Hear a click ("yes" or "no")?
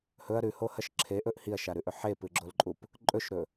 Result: yes